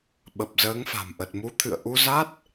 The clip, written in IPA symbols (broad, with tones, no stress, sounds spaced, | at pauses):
ɓ ə˨˩ p̚ z əː˨˦ ŋ f a̤˨˩ m ʔ ə˨˩ t̚ m u˨˦ t̪ʰ ɨ̰˧˨ ə̯ ʔ u˧ z a˦˥ t̚